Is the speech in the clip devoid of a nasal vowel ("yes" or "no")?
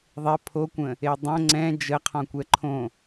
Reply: no